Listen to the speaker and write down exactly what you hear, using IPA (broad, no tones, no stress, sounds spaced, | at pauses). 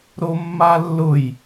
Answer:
ɾ o mː a lː ʊ j